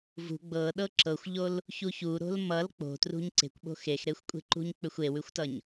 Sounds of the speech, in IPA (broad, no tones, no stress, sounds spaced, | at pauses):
v ṳ ɡ͡b ɤ ɗ ɤ ǁ ɤ xʷ ʎ o l | ç u ç u ɾ o̤ l m ʌ l k͡p o̤ t r ṳ ɲ ǀ e̤ kʷ ɓ o̤ x e x ɾ e xʷ kʷʼ e̤ ǃ ṳ ɲ k͡p ʏ xʷ e w ʉ xʷ t ʌ ɲ